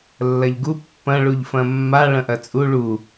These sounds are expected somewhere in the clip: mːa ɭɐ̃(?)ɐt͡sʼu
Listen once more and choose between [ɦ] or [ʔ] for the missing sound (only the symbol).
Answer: ʔ